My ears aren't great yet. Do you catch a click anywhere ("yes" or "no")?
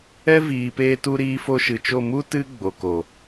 no